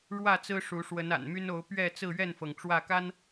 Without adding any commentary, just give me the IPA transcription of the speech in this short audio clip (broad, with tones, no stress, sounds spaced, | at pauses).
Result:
ɻ w ä˥˨ t͡s ɹ̩˦ ʂ u˨˦ ʂ w ə˨˦ n a̰˨˩ n m y˦ n o˨˦ ʊ̯ p ɥ ɛ˥˨ t͡s ɹ̩˥˨ ɥ ɛ˥˨ n f ɤ˩ ŋ ʈ͡ʂ w ä˥˨ k a˦ n